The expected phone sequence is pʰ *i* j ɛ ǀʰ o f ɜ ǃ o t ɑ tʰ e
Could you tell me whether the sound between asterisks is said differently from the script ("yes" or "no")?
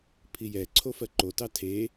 no